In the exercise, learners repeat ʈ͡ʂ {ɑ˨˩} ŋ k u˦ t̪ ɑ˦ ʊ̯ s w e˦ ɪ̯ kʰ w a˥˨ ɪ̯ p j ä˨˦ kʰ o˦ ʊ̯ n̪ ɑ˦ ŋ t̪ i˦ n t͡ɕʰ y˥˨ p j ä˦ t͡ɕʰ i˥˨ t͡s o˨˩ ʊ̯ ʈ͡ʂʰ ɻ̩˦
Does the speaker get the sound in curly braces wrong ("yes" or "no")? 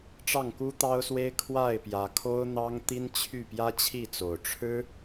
yes